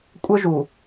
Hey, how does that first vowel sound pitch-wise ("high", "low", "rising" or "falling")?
high